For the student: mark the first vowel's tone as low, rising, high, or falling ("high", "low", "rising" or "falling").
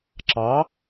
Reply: rising